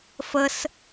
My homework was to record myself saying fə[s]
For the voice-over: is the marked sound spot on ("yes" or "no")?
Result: yes